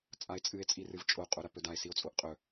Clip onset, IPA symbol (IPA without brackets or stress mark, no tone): t͡sʼ